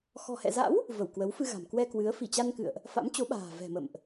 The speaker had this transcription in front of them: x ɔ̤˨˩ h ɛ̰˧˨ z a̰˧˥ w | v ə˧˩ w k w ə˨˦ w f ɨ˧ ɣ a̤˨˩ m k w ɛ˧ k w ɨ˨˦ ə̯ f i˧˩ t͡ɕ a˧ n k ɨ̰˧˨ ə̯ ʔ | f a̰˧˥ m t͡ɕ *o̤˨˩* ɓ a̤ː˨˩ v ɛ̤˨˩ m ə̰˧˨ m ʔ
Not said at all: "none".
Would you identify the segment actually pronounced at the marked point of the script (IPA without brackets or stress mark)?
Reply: o˨˦